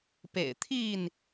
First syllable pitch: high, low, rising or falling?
low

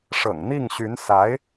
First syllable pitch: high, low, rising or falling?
low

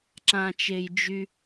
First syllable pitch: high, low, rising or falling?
low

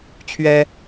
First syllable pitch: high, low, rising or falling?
high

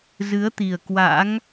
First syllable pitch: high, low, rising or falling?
rising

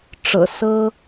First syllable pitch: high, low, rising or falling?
low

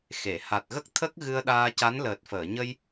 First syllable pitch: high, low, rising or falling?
low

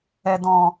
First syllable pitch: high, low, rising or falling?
low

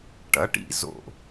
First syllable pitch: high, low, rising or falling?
rising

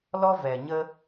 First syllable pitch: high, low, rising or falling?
high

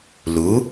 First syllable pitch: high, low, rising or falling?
rising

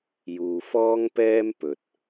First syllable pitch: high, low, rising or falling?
low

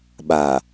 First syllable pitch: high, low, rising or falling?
low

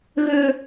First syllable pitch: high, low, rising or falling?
low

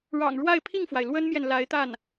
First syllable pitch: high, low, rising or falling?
low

